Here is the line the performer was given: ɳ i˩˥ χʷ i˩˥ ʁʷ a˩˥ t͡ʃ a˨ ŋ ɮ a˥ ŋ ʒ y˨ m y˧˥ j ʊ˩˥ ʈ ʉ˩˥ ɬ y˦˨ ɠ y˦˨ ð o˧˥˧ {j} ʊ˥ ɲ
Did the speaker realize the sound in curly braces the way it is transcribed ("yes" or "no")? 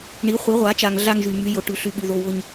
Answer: no